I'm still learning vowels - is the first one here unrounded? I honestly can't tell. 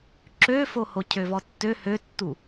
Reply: no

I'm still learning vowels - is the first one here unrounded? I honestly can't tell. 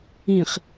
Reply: yes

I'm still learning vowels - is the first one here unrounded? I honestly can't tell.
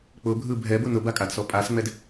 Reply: no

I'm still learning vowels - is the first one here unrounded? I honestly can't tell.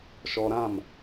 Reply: no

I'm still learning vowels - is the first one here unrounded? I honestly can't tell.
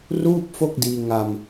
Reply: no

